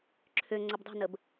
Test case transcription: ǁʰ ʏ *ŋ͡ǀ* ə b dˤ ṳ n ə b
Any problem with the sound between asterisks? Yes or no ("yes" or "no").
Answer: no